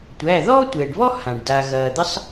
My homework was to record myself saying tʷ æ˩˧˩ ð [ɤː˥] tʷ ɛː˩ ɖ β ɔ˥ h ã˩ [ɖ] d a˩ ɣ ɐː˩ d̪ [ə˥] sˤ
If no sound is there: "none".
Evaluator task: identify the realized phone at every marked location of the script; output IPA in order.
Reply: ɔː˥, ɖ, ə˥

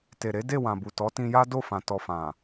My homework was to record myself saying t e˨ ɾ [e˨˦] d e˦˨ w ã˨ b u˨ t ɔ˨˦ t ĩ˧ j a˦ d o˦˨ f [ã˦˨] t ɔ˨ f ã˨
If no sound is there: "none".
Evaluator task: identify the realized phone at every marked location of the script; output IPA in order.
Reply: e˨˦, ã˨

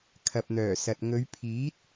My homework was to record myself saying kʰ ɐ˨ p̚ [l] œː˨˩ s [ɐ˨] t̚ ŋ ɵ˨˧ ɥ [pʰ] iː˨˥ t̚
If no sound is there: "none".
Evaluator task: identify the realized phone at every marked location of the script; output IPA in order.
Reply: n̪, ɐ˨, pʰ

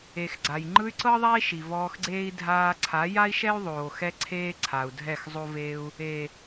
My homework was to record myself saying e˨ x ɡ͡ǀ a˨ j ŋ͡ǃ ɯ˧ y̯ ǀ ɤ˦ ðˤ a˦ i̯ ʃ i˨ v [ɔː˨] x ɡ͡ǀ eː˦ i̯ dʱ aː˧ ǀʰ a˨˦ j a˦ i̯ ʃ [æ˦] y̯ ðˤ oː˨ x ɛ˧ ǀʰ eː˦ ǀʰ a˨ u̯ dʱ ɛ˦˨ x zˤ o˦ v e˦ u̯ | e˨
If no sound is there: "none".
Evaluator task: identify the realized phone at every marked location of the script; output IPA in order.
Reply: ɔː˧, ɛ˦

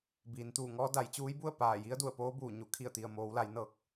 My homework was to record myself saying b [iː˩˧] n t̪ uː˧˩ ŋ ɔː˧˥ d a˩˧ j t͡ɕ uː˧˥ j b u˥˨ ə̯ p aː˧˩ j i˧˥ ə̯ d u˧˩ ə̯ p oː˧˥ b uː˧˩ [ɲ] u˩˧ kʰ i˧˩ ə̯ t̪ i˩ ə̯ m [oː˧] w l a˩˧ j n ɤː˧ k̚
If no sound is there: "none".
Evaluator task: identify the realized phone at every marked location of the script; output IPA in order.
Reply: iː˩˧, ɲ, oː˩˧

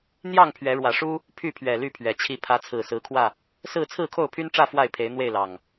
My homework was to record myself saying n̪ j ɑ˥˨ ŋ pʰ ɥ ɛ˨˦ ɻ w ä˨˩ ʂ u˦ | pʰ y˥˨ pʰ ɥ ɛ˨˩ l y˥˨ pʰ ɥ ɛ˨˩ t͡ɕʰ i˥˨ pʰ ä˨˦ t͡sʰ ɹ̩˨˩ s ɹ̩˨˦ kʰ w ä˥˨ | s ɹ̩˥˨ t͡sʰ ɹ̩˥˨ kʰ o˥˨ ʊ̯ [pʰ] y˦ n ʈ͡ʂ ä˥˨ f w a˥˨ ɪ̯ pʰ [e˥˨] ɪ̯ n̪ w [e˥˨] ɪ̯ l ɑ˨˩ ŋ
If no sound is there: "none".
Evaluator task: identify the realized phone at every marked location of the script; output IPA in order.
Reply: pʰ, e˨˦, e˥˨

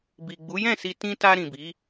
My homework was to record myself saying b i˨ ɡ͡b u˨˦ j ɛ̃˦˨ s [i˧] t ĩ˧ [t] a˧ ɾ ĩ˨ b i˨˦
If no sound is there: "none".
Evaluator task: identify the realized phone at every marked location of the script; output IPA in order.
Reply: i˧, t

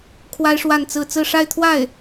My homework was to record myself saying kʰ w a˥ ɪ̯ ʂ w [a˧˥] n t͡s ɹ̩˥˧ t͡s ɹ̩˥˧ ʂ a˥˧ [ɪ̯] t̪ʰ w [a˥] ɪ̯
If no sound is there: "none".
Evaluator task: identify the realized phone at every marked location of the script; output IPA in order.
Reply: a˥˧, ɪ̯, a˥˩

